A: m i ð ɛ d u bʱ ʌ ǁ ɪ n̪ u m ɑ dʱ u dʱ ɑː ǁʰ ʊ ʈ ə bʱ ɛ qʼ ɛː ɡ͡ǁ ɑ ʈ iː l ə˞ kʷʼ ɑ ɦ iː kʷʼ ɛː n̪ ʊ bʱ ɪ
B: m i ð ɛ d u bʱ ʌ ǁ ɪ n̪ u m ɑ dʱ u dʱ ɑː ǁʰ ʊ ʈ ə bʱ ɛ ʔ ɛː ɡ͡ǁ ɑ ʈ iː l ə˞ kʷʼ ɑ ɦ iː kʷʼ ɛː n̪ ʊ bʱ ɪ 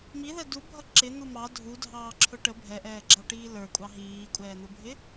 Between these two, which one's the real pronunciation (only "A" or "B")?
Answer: B